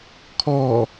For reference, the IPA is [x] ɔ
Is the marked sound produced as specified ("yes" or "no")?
no